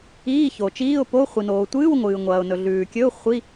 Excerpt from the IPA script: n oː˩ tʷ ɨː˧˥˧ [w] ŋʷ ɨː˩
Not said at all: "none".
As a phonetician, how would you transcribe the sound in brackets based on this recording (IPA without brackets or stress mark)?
w